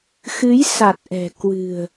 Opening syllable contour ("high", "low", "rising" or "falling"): rising